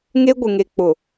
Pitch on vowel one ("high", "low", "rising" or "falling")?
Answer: high